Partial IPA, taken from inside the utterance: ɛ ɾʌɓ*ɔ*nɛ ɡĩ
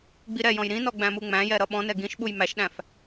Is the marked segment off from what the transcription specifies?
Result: yes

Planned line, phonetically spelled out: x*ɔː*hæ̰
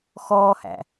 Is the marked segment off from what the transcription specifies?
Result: no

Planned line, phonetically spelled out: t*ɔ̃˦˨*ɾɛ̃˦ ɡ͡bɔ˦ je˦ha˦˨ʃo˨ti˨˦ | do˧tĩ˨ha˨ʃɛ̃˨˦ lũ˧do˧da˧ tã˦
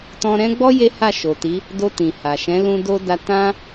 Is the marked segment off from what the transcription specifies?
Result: yes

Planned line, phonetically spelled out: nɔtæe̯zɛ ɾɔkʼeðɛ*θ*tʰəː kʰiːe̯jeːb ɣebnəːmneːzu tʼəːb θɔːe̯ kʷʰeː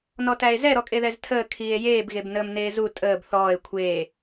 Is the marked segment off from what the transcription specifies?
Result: yes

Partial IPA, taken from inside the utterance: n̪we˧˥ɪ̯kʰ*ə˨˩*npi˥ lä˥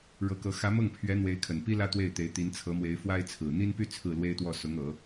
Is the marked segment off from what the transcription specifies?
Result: no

